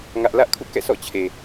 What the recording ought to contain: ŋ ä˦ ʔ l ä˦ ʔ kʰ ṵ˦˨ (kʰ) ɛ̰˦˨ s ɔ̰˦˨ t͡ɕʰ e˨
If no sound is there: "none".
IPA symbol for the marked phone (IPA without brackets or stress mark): k